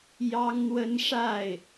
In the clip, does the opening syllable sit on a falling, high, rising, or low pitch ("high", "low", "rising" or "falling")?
high